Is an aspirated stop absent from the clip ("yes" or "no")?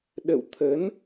no